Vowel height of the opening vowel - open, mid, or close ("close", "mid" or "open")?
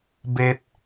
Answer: mid